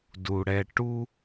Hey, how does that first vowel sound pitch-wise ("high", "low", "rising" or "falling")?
low